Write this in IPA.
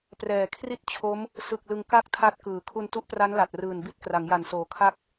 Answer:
p r ɛː˨˩ kʰ r i˥˩ t̚ t͡ɕʰ o˦˥ m | s ɯ˨˩ k̚ l ɯ˧ ŋ k a˥˩ k̚ tʰ a˦˥ t̚ k ɯː˩˦ kʰ u˧ n t u˦˥ ʔ p r a˦˥ n l a˨˩ t̚ r ɯː˨˩ n b i˦˥ t̚ k r a˩˦ ŋ j a˨˩ n s oː˨˩ kʰ a˦˥ k̚

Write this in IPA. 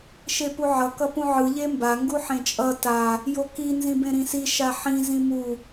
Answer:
ʃ e p u ʕ ʌ k ʌ p ũ ʕ ɯ ʎ e m b a ŋ ɡ u ħ ẽ t͡ʃʼ ʌ t a | j o k i n z ĩ b ẽ ɾ ĩ s i ʃ a ħ ĩ z ĩ m u

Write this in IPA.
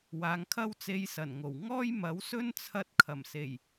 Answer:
w aː˨˧ ŋ kʰ ɐ˥ w t͡s e˧ j s ɐ˨˩ n ŋ o˨˩ w ŋ ɔː˥ j m ɐ˨˥ w s ɵ˥ n t͡sʰ ɐ˧ t̚ kʰ ɐ˨˩ m s e˨˩ j

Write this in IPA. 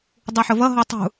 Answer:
dˤ u ħ ʊ v ʌ ɦ ɔ tˤ ṳ

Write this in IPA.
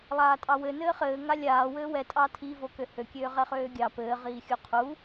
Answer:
lˠ aː tʼ ɑ w ɘ n ɘː χ ɘː ŋ a lʲ aː w ɘː w ɛ tʼ ɑ tʰ i v o k ø h ø kʲ øː ʁ ɛ χ øː ɡʲ ɑ p ɘː ʁ iː xʲ u qʰ u

